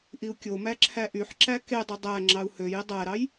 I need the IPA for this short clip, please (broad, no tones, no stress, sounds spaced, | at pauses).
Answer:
ʔ i u̯ kʲ o m æ ǁʰ æ ʔ y ħ ǁ æ k e dˤ y dˤ æ ŋ͡ǁ ɑ u̯ h ø j i dˤ æ ɾ ɑ j